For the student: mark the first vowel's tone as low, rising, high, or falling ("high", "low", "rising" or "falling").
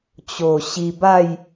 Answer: low